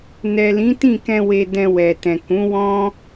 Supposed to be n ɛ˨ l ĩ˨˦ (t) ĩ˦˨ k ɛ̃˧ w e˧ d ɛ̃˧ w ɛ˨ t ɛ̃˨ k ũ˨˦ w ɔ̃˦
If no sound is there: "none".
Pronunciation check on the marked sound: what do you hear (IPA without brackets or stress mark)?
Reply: t